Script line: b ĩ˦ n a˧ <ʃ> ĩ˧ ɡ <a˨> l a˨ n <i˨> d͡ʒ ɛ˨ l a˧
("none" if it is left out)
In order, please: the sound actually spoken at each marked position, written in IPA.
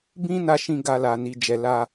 ʃ, a˧, i˨

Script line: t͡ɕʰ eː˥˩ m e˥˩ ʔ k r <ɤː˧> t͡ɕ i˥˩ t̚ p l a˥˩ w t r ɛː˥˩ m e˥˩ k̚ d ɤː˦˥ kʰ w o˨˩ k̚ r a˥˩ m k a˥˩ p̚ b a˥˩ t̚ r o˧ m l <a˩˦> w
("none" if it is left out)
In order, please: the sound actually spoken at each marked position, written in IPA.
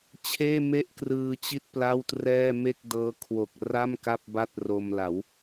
ɯː˧, a˩˦

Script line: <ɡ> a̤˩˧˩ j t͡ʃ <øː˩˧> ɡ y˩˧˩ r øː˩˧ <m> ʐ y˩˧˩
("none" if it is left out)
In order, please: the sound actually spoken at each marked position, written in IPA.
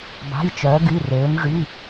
b, œː˩˧, m

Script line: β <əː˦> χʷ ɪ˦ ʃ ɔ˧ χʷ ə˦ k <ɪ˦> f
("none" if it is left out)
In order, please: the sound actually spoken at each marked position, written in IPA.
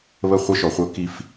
ə˦, i˦

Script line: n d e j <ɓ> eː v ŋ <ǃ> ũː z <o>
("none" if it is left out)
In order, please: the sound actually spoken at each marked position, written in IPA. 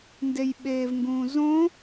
ɓ, ɡ, õ

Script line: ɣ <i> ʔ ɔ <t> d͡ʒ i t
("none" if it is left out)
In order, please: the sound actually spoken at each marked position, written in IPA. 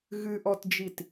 ɨ, t

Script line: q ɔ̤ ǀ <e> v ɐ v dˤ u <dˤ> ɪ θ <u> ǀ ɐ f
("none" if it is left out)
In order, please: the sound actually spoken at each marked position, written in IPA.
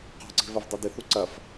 e̤, d, u

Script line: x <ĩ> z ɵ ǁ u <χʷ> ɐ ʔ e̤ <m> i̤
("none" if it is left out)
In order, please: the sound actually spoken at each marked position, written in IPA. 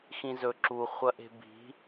ĩ, χʷ, b

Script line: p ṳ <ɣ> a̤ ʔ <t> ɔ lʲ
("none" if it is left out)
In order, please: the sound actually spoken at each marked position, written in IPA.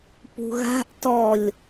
ɣ, t

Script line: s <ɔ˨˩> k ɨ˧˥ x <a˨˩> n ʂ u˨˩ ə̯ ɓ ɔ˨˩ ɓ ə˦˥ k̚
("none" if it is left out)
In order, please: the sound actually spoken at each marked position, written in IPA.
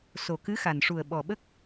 o˨˩, a˨˩

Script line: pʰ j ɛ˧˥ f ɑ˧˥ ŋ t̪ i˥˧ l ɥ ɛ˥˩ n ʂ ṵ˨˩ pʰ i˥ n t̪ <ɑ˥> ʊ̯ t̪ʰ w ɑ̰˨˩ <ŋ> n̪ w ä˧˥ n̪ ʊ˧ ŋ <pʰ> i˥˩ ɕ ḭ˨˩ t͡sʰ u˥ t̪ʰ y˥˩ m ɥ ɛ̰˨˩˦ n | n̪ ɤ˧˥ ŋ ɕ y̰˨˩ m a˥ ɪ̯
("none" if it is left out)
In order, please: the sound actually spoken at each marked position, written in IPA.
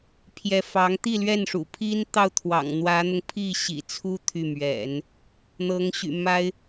ɑ˥˩, ŋ, pʰ

